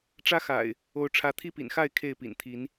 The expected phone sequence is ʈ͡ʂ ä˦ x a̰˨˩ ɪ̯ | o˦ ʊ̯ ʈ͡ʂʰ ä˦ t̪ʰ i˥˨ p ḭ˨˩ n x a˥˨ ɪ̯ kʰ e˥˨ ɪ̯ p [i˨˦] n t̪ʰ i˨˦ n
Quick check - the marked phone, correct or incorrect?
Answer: incorrect: ḭ˨˩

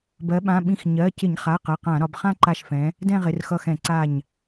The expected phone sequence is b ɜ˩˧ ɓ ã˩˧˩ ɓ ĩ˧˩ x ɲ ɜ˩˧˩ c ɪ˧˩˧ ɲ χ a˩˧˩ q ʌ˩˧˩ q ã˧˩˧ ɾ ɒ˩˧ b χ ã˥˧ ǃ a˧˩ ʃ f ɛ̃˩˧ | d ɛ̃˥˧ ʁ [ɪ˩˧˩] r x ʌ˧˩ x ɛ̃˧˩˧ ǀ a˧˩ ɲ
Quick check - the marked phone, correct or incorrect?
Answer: correct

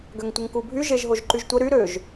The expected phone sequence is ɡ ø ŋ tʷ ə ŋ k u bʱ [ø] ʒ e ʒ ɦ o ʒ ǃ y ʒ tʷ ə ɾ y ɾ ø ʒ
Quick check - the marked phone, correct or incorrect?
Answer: incorrect: y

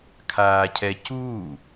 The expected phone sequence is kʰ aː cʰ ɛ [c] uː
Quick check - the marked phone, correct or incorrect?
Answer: correct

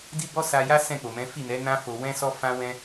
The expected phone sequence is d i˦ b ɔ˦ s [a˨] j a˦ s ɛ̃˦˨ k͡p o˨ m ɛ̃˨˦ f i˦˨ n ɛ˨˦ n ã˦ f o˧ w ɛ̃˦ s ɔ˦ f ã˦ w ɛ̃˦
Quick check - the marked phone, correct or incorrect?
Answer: incorrect: a˧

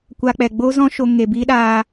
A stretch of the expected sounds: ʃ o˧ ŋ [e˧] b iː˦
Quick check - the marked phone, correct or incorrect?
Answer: incorrect: e˨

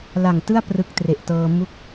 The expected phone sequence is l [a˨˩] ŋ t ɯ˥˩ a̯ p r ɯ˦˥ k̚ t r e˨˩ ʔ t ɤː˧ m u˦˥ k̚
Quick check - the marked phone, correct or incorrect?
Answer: correct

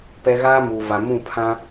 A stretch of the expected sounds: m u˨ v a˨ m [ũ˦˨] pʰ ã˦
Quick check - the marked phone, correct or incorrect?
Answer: correct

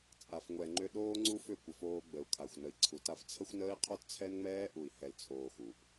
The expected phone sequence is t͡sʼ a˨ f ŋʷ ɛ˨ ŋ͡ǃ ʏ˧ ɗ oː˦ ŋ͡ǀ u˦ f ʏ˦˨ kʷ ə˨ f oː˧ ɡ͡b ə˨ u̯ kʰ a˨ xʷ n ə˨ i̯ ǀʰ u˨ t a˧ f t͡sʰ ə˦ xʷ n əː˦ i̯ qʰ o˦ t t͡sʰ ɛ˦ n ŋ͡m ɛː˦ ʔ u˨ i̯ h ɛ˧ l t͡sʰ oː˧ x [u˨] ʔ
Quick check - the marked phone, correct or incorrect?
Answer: correct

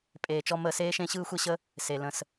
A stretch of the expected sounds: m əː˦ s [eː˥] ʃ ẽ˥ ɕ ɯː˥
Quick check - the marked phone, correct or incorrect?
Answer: correct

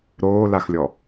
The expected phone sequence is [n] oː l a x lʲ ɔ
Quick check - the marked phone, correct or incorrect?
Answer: incorrect: ɾ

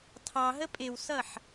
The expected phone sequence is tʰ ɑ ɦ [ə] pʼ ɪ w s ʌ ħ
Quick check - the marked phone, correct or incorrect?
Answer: correct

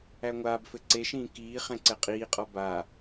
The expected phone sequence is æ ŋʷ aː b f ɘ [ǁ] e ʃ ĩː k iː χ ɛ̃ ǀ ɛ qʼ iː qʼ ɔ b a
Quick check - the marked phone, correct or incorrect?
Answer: incorrect: ǀ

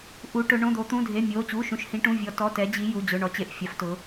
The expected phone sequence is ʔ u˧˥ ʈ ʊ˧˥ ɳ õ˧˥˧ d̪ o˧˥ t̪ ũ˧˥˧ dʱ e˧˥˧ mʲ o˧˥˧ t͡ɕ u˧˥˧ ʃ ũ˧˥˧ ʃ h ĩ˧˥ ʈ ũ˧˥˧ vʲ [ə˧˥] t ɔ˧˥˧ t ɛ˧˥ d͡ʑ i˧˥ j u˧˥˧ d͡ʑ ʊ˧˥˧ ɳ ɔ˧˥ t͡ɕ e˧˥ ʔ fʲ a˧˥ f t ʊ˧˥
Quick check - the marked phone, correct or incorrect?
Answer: incorrect: ɔ˧˥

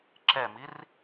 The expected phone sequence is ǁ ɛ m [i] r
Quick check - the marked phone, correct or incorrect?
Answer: correct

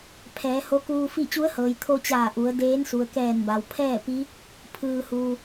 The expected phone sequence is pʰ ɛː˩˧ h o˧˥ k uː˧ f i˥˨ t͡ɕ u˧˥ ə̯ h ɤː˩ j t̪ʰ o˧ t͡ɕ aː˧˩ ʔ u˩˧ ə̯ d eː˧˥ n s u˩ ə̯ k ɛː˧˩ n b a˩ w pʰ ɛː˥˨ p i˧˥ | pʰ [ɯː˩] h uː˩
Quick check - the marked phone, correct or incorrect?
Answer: correct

